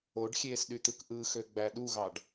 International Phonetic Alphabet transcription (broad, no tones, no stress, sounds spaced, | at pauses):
o ɖ xʲ eː s ɗ y t̪ ɯ k ʔ ɯ x ø ɡ͡b æ ɗ u ɣ ɑ ɖ